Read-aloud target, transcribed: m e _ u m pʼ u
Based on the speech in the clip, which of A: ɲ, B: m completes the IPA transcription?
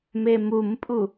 B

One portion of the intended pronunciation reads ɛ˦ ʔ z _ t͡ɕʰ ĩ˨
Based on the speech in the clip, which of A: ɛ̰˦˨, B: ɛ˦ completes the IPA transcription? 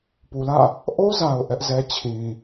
B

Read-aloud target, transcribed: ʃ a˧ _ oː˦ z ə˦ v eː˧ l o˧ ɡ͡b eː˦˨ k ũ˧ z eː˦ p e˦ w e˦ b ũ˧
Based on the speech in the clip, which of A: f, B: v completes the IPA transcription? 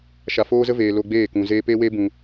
A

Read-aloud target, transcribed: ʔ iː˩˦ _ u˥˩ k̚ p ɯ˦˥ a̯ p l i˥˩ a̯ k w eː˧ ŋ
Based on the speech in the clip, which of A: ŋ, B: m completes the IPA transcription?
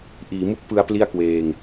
B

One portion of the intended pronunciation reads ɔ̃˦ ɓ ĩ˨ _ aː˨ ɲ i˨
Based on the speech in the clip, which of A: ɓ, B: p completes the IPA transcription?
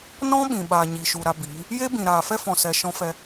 A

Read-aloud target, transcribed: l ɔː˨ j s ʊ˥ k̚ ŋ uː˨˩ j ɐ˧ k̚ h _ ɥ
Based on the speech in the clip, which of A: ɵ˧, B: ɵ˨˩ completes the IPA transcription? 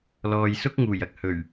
B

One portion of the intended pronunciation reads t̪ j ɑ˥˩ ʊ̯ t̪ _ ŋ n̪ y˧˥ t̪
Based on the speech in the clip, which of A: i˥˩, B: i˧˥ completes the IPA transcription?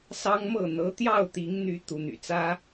B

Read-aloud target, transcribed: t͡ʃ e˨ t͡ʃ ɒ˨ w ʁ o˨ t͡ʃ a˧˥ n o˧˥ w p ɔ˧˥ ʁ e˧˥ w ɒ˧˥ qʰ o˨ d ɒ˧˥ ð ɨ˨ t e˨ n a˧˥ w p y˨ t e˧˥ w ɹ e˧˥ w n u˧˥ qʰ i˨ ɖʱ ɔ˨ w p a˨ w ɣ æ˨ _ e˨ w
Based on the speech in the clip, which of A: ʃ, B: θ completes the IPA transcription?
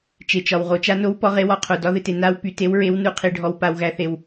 B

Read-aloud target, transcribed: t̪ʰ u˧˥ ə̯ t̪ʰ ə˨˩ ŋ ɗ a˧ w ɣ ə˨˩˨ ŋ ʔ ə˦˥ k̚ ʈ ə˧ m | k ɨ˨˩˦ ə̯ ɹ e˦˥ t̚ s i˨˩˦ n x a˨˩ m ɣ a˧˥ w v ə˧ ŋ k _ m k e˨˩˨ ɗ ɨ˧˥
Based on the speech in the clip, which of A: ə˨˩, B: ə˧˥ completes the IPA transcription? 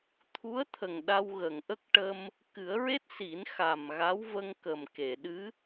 A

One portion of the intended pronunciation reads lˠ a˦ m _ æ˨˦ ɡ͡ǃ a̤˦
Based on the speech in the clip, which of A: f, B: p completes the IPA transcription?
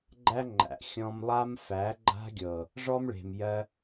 A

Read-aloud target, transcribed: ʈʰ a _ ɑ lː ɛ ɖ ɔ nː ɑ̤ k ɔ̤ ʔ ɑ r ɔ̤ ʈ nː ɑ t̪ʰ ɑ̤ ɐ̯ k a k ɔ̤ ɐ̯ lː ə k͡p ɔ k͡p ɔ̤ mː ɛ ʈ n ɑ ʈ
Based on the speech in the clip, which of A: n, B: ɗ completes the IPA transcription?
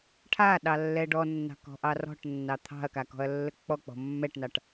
B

